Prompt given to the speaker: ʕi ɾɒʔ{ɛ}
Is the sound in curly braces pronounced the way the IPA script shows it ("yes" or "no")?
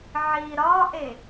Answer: no